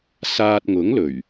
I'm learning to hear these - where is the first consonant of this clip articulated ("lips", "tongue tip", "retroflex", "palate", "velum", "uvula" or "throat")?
tongue tip